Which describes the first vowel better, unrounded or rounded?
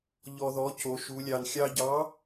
rounded